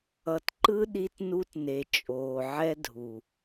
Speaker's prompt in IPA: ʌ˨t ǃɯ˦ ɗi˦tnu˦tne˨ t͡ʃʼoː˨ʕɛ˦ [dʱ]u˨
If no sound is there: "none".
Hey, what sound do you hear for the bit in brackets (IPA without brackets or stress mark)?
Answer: dʱ